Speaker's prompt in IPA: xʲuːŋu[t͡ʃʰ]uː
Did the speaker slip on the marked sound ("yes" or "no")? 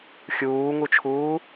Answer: no